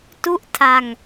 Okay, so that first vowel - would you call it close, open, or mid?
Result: close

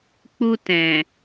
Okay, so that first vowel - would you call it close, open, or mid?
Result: close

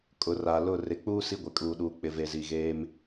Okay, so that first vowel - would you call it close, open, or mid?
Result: close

